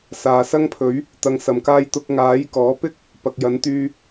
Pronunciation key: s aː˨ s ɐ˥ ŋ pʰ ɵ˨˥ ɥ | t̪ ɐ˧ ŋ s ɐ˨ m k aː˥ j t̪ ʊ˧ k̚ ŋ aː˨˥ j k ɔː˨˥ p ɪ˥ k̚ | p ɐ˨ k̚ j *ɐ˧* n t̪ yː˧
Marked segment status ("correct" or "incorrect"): incorrect